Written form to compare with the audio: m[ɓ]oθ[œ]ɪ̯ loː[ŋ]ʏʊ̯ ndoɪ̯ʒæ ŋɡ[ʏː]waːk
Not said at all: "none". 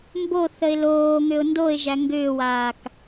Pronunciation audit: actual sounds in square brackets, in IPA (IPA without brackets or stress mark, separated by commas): b, ə, ŋ, ʏː